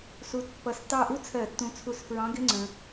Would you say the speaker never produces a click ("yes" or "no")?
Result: no